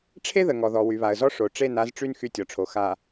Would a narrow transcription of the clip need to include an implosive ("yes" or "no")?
no